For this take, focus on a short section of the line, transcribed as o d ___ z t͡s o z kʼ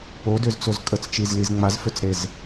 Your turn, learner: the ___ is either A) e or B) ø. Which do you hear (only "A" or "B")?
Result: B